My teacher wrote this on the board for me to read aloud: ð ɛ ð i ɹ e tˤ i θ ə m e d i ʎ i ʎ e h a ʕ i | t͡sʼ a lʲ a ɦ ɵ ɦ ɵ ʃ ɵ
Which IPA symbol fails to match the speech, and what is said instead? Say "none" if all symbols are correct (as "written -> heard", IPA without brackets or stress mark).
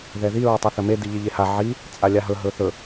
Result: ʃ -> θ